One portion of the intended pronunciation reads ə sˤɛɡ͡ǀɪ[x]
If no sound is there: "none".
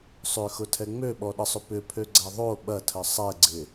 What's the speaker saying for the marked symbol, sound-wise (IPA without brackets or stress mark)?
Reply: none